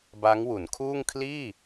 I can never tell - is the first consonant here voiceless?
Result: no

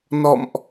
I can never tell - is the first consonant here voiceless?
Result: no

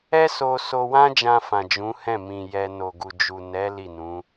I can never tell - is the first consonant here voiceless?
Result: yes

